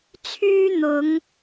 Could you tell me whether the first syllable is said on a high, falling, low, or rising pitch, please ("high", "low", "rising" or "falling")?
high